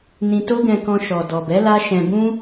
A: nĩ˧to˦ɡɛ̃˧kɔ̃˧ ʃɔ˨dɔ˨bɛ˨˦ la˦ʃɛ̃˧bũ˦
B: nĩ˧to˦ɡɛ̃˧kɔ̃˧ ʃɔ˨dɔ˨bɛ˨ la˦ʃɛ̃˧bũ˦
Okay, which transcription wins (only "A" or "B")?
A